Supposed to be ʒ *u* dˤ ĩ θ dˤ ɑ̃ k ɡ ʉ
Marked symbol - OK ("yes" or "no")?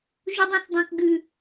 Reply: yes